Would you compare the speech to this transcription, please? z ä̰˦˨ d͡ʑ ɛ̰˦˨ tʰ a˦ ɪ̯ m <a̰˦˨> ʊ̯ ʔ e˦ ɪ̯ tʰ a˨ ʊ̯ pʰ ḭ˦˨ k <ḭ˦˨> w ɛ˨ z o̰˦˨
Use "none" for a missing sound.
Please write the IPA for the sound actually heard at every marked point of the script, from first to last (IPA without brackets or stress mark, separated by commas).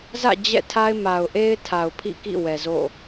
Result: a˨, ḭ˦˨